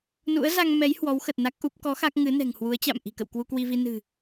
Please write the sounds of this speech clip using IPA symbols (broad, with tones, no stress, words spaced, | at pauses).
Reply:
nṵ˧˥ə̯za˧ŋmɛ˨˦j hwɔ˨˦wxə˨˩t̚ na˦˥k̚ʔu˦˥p̚ kɔ˨˦ xa˦˥k̚ŋɨ˨˦nɛ̤˨˩ŋ hwu˨˦ə̯t͡ɕa̰˧˨m ʔi̤˨˩kə̰˧˨w kwu˧kwi˧vi˧ nɨ̤˨˩